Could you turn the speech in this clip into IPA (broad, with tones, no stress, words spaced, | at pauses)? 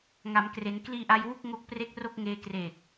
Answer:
ŋa˩˦mkre˩˦n kliː˧ʔa˧jwu˥˩k̚ ŋo˦˥k̚pre˥˩k̚ro˥˩k̚ŋeː˧ kreː˨˩k̚